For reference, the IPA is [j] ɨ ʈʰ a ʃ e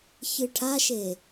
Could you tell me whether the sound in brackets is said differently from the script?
yes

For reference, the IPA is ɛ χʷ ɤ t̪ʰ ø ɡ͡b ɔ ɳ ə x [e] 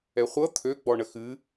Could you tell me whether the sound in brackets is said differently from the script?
yes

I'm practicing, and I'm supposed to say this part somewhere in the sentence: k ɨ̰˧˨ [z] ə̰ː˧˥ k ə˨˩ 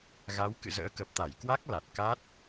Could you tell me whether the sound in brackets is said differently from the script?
no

